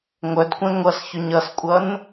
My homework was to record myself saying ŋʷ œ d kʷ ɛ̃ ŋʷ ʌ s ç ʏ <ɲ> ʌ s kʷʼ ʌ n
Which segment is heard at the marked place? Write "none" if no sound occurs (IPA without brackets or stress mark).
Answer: ɲ